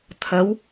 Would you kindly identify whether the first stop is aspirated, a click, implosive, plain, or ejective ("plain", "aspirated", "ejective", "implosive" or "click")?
aspirated